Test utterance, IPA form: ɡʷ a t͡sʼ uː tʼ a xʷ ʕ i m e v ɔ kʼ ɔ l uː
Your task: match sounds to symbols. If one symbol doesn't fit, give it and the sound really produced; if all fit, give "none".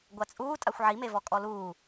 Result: none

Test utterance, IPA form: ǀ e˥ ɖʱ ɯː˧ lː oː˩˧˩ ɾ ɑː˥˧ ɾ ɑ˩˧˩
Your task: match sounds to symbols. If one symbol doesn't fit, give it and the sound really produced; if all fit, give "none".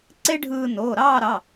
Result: lː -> n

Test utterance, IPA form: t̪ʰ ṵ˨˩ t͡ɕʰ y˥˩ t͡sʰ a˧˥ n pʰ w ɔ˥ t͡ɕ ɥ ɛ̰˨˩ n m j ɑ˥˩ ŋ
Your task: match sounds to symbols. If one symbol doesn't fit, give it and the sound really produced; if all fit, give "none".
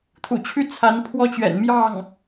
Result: none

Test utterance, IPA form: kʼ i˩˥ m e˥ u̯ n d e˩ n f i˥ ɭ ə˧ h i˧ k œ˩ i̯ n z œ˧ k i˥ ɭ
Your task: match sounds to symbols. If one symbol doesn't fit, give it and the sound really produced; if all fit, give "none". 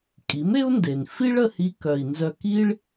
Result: none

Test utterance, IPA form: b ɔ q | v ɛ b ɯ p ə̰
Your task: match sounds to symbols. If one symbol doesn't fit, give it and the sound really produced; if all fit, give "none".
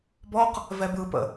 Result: none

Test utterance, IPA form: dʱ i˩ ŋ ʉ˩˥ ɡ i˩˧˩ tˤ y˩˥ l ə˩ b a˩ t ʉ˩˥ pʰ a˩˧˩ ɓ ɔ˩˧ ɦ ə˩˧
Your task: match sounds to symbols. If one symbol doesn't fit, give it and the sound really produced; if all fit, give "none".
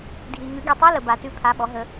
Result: y˩˥ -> y˧˥˧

